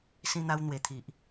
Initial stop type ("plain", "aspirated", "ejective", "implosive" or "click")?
aspirated